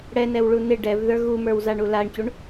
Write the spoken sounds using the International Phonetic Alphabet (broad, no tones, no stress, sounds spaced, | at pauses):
ɽ ɛ n ɛ w ɭ u n ɪ ɖ ɛ v ð ə˞ ɣ u m ə˞ w z a ɳ u l a ɳ c u ɳ